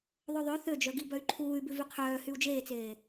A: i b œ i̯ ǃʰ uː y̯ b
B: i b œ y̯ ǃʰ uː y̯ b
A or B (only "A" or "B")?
B